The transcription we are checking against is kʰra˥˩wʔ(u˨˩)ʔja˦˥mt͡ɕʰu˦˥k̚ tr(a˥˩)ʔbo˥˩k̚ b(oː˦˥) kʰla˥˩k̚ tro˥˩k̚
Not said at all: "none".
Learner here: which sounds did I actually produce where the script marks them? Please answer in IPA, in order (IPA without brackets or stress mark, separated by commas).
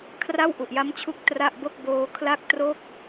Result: u˨˩, a˥˩, oː˦˥